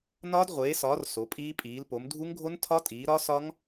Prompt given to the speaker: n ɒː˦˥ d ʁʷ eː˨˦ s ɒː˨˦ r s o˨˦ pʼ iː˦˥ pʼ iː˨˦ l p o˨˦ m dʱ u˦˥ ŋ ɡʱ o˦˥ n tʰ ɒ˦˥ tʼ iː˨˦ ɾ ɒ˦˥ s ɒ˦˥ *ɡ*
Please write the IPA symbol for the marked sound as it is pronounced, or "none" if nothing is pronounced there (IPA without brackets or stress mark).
ŋ